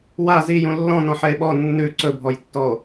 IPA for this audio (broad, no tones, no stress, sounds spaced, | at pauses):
w a z i j ũ lː ɔ̃ n ɔ̃ ħ ɛ e̯ ɓ ɔ nː ʉ ǀ ɵ bʱ ɔ j tː ɔ o̯